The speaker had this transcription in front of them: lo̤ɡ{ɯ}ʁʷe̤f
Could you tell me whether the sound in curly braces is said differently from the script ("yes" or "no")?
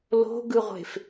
no